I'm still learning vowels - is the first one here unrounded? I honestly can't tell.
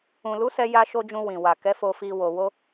no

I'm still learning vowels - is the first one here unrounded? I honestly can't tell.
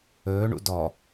no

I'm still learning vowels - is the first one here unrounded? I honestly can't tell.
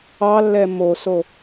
yes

